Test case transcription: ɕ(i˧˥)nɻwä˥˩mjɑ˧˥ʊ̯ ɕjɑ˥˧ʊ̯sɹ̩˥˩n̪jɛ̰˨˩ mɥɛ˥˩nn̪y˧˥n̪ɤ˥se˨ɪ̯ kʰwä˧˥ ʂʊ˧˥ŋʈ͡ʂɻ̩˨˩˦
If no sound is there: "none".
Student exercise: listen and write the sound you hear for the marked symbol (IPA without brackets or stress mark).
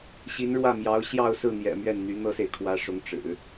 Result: i˧˥